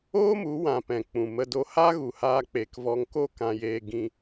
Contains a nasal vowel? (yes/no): yes